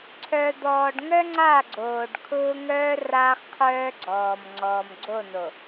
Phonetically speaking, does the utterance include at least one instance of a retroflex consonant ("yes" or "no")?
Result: yes